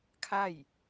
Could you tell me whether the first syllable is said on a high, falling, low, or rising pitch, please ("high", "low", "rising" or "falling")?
falling